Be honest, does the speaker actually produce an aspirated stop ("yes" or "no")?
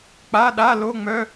no